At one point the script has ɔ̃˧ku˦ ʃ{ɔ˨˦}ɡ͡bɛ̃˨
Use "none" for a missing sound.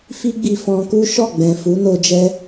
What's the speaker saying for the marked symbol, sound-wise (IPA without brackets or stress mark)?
ɔ˦˨